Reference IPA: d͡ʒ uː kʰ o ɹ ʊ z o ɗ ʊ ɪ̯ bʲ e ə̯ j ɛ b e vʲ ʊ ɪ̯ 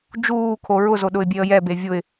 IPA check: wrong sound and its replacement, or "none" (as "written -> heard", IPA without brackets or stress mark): none